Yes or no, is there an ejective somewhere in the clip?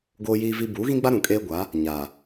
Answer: yes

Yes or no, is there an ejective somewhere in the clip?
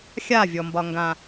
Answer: no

